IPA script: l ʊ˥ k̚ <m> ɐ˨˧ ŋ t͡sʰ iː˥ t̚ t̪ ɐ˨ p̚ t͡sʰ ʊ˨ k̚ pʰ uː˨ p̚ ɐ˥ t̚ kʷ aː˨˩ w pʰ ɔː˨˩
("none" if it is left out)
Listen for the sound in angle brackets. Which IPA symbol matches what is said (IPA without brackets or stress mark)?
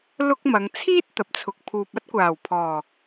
m